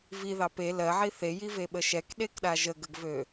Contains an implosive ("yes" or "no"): yes